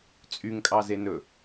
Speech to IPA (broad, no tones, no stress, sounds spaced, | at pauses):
t͡sʼ y ŋ kʼ ɑ z e n ɵ